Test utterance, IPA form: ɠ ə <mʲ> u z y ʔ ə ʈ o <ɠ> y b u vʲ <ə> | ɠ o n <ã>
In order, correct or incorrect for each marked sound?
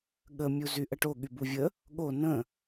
correct, correct, correct, incorrect

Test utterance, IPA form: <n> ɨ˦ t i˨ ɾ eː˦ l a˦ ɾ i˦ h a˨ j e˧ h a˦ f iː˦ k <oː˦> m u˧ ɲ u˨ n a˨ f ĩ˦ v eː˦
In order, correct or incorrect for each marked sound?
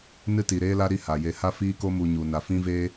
correct, incorrect

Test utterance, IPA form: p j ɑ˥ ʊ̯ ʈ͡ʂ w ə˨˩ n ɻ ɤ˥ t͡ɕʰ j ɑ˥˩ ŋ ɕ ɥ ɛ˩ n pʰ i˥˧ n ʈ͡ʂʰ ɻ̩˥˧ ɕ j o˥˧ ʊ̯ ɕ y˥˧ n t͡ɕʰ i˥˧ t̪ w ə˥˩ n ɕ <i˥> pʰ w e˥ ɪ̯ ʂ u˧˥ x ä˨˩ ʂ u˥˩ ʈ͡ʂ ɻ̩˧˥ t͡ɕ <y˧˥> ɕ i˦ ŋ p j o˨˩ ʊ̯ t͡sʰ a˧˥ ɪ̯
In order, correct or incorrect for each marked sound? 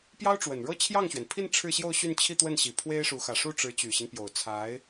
incorrect, incorrect

